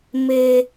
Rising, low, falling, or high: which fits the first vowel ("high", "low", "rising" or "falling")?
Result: high